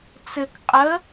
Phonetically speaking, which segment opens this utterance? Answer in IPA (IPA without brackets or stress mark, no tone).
t͡s